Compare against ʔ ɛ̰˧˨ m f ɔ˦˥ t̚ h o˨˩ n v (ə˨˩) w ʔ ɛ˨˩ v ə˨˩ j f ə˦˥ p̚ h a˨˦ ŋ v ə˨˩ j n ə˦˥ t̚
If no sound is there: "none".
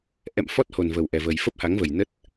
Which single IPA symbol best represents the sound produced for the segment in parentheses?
ə˨˩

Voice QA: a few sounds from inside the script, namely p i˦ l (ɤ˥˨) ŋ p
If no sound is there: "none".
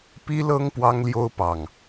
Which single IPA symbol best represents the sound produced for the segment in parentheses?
ɤ˦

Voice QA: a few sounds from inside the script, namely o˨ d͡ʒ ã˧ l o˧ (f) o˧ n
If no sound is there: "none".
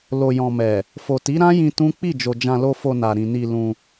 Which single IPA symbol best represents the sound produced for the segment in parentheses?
f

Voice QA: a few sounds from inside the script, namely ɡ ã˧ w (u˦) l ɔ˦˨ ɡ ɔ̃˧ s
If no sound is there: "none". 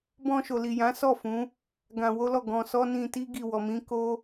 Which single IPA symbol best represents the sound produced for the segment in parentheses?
o˦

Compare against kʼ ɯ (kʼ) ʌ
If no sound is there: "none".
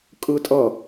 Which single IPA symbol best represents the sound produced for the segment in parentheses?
tʼ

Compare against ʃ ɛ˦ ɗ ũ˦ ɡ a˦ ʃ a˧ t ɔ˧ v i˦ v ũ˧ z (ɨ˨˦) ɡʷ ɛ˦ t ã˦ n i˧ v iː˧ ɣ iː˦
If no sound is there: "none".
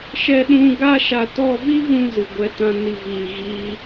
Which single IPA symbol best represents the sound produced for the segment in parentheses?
ɨ˧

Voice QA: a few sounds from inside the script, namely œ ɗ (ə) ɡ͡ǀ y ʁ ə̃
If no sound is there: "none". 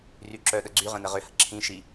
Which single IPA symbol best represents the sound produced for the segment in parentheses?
ə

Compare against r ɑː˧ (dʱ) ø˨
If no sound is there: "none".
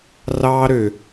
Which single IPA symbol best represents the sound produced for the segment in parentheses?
ɾ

